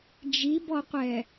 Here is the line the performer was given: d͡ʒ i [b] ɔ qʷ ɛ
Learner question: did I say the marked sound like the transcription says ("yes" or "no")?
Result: yes